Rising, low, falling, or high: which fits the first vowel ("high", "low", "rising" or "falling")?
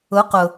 rising